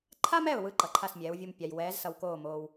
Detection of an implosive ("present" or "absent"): absent